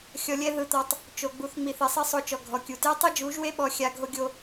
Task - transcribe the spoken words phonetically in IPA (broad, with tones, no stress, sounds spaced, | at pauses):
xʲ ɔ˧ lʲ ɛ˦ ð ɯ˧ t̪ ɔ˧ tˤ | t͡ʃ o˨ ɡ͡b u˧ θ ŋ͡m i˧ θ i˨ sˤ i˦ sˤ o˧ t͡ʃ ɔ˨ ɡʱ ɔ˨ kʲ u˨ t e˦ tˤ ɯ˦ d͡ʒ u˨˦ ʒ w e˦ ɓ ɔ˧ xʲ a˧ ɡʱ o˦ ɡʲ o˧